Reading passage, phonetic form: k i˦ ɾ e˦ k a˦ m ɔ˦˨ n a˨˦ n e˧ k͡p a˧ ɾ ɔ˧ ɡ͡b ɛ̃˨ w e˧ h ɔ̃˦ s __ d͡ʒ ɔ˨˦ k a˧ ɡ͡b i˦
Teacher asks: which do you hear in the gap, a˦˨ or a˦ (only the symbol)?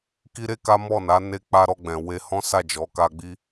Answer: a˦˨